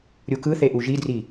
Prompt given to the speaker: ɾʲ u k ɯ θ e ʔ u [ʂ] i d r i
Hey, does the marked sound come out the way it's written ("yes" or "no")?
no